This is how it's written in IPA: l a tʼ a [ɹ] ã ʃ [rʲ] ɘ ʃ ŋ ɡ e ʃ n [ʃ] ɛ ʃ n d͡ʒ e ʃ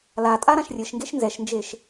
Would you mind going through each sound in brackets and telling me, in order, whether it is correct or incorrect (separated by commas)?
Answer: incorrect, correct, incorrect